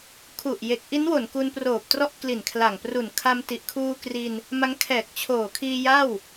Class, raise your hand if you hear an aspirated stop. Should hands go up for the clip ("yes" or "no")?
yes